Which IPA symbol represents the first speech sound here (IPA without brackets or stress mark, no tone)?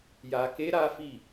j